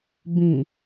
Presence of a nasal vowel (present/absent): present